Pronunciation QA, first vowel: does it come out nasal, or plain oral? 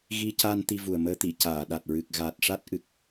oral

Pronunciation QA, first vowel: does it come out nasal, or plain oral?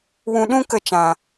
nasal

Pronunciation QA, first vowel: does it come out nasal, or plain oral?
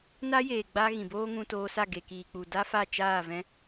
oral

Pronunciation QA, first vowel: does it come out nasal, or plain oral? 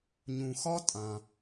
nasal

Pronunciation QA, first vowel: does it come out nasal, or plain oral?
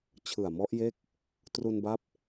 oral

